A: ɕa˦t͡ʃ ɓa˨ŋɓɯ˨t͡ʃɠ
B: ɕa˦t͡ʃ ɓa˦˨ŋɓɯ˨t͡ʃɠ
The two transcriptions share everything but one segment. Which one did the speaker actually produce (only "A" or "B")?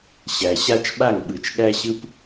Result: B